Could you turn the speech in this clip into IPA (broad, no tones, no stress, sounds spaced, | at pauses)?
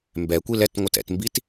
m b ɛ kʷ i l ɛ t ŋʷ ɯ t ɛ̰ t m b i t